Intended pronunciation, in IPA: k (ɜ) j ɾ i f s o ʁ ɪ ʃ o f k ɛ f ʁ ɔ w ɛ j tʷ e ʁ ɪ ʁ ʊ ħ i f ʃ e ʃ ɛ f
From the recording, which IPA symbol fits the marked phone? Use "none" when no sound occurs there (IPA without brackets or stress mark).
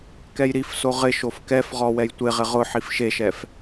ɛ